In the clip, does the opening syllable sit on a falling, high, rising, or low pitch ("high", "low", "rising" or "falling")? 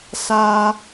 high